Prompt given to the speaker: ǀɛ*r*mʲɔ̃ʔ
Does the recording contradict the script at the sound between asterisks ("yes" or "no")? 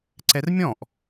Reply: no